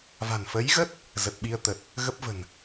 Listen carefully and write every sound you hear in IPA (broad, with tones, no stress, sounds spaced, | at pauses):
v a̤˨˩ n f ə˨˦ j ɣ ə˦˥ t̚ | z ə˨˩ t̚ ɓ i˧ ə̯ t̪ ə˨˩ t̚ | ɣ ə˦˥ p̚ v ə̤˨˩ n